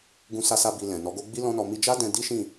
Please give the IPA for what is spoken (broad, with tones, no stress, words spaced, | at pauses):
ɡũ˧sa˧sa˧ bi˨ lɛ̃˨nɔ˨˦ɡo˦ ɡ͡bi˦lɔ̃˦nɔ˧ mi˧d͡ʒa˦dɛ̃˧ di˦ʃĩ˦˨